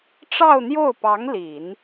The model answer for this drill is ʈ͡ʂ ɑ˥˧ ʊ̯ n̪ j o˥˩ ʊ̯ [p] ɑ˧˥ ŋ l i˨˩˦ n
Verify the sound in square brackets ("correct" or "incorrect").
correct